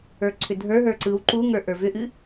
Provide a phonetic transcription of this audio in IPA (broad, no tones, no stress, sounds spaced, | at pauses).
ə˞ ǀʰ ʏ dʱ ə˞ ɦ ə˞ ǀ ɯ w ǃ u ŋ ə˞ ʔ ə˞ v ʏ ʔ ɨ